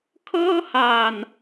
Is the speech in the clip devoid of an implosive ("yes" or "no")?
yes